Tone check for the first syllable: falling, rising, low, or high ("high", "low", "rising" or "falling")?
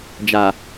low